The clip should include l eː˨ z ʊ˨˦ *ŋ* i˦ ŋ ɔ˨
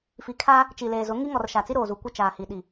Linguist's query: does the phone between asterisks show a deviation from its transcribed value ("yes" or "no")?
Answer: no